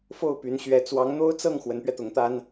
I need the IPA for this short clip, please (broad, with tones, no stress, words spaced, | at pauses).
fo˥˩ʊ̯py˧˥nɕɥɛ˧˥ t͡swɑ˧˥ŋn̪o˥ʊ̯t͡sɤ˥˩ŋ xwə˧˥npɥɛ˧t̪ʊ˧˥ŋt̪a˥n